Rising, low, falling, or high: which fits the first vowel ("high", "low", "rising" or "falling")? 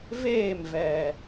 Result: falling